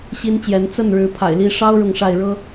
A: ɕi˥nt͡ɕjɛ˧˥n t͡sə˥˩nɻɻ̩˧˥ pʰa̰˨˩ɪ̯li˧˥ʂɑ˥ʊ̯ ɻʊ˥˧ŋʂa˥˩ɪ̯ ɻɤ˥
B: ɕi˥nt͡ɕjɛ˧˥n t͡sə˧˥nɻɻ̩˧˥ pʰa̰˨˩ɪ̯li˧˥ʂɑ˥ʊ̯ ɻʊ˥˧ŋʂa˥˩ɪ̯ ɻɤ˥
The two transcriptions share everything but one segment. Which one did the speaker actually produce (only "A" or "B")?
A